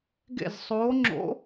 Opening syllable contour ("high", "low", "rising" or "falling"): falling